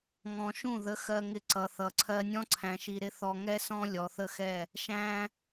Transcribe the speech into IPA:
ŋ ɔ̃˨ ʃ ũ˦˨ ð ə˨˦ x ɜ˧ ŋ ɪ˧ ǀ ʌ˨ θ ʌ˨ ǀʰ ɜ˧ nʲ ɔ̃˦ ǀʰ æ̃˨ ʃ i˨ ɾ ɪ˧ θ ɔ˧ ŋ ɛ˦ s ɔ̃˦ lʲ ɔ˨ θ ə˦ x ɛ˦˨ | ʃ æ̃˦

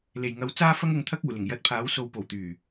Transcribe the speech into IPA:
l e˨˩ j ŋ ɐ˨˥ w t͡s aː˥ f ɐ˥ ŋ ʊ˨˧ ŋ t̪ʰ ɐ˥ k̚ uː˨˩ l ɪ˨˩ ŋ j ɐ˧ t̚ pʰ aː˨˥ w s o˨˧ w p o˨˩ w t̪ yː˨˩

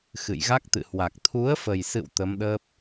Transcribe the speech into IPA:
x ɨ̰˧˨ j ɣ a˦˥ k̚ t̪ ɨ̰˧˨ h w a˨˩ k̚ t̪ʰ u˨˦ ə̯ f ə˨˩ j s ɨ̰˧˨ w t̪ ə˨˦ m ɗ əː˦˥ p̚

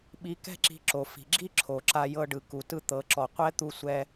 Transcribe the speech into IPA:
ɓ i˧ k ɛ̤˥ ǁ i̤˧ ǁ o˩ f i̤˩ ɡ͡ǁ i˥ ǁʰ o˩ ǁ a˧ j ɤ˧ ɖ ɯ˩ k u˩ t ɯ˧ t̪ ɤ˩ ǁ ɔ˩ qʷ ɛ˥ t̪ u˧ sʷ ɛ˧

